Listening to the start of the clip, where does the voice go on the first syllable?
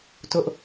high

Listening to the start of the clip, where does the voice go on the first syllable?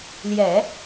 low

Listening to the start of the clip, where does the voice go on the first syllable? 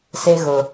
high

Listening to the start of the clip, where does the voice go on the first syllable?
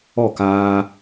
falling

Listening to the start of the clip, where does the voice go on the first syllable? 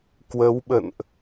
rising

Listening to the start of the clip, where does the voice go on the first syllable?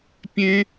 high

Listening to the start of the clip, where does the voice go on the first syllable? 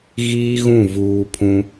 high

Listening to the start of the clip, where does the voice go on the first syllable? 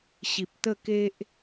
low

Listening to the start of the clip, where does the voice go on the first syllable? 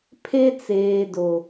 high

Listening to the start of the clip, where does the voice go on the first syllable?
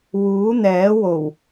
rising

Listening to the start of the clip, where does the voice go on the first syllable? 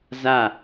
falling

